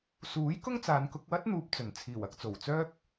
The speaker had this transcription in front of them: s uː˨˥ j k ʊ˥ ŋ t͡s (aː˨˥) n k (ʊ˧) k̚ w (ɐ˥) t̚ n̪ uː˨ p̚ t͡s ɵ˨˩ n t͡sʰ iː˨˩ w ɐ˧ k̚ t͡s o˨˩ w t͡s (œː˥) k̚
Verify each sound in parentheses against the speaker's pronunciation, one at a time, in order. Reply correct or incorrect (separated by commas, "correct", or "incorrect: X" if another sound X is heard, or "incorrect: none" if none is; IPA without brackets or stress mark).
incorrect: aː˨˧, correct, correct, correct